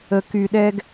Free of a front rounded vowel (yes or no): no